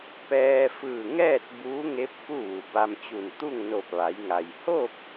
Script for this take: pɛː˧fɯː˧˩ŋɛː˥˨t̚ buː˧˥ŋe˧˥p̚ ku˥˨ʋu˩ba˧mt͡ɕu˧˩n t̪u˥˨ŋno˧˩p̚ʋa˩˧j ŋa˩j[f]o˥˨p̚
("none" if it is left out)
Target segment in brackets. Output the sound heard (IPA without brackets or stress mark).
h